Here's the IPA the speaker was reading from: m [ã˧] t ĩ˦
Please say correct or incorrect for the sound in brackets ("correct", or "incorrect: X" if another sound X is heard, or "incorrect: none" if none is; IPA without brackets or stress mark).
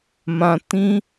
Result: correct